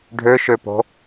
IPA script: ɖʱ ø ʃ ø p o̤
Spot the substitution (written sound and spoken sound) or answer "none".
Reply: none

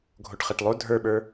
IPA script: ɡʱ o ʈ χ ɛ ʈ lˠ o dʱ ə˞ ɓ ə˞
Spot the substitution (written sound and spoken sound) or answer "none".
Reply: none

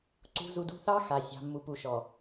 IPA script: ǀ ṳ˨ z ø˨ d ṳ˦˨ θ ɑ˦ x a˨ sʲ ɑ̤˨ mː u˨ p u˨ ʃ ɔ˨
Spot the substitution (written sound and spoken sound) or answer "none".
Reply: ø˨ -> u˨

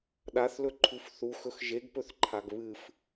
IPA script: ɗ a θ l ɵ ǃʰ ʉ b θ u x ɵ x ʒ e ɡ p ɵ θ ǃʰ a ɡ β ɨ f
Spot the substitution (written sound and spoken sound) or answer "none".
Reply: b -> f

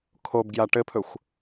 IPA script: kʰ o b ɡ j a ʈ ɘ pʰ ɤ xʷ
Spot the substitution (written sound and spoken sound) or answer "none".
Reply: ɤ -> ɵ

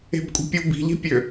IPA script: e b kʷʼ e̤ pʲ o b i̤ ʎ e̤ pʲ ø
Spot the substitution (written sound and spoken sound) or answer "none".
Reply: e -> e̤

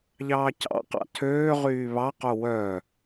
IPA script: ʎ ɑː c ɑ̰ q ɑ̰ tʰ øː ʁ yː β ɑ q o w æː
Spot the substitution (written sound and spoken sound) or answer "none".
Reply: æː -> œː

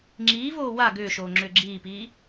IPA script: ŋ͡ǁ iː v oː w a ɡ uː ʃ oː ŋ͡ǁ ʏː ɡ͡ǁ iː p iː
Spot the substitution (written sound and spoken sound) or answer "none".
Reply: uː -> ʏː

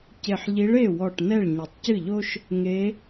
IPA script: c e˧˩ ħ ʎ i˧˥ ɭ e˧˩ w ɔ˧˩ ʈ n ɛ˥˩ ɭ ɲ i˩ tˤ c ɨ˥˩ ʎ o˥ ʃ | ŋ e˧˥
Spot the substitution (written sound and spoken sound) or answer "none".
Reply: none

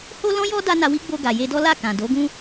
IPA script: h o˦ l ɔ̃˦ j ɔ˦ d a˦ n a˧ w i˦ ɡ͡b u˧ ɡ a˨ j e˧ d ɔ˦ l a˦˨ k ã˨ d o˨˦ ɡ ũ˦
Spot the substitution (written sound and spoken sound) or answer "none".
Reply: u˧ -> o˧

